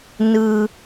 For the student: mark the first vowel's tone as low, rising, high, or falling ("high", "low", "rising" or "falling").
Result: high